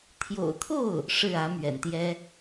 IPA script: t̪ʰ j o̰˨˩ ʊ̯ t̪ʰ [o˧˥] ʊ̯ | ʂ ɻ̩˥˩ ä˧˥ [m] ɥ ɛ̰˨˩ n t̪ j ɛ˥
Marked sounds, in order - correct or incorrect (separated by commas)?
incorrect, correct